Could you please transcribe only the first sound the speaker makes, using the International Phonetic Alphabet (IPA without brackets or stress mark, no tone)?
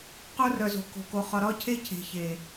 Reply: q